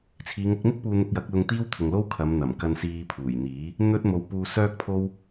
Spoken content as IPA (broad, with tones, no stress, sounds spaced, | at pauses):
t͡sʰ iː˨˧ ŋ ʊ˨˥ k̚ n̪ ɪ˥ k̚ p uː˧ n̪ ʊ˧ k̚ j ɐ˨˥ k̚ l ʊ˧ ŋ t̪ iː˥ w t̪ʰ ʊ˨ ŋ l o˥ w kʰ ɐ˨˧ m n̪ ɐ˨˩ m k ɐ˧ n s iː˧ pʰ uː˨˩ j n̪ iː˨˥ | n̪ ɵ˥ t̚ m o˧ w p uː˧ s œː˥ k̚ t̪ʰ o˥ w